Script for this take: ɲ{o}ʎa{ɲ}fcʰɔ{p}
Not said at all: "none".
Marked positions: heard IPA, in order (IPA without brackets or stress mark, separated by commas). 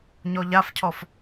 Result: ɔ, none, f